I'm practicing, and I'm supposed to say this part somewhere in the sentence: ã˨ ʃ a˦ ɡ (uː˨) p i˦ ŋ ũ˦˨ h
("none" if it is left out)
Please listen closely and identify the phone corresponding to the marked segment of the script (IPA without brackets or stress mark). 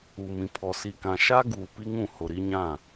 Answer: uː˨